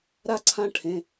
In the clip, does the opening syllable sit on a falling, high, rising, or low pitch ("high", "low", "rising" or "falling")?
high